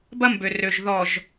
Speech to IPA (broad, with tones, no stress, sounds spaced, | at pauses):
b ɐ˦ m b ø˨ r ø˨ ʒ ð ɔ˨ ʒ